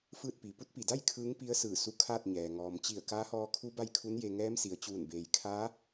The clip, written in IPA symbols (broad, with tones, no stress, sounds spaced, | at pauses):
f ɯː˥˨ t̚ p i˩ p u˧˥ t̚ p i˩ d a˥˨ j kʰ ɯː˧˥ ŋ p i˧˥ ə̯ s ɯː˧˩ s u˧˥ kʰ aː˥˨ t̚ ɲ ɛː˩ ŋ ɔː˩ m t͡ɕ i˧˩ ə̯ k aː˧˥ h ɔː˧ kʰ u˧˥ b a˥˨ j kʰ u˧˥ n j e˧ ŋ ɛː˧˥ m s i˩ ə̯ t͡ɕ uː˧˩ n b eː˩ j kʰ aː˧˥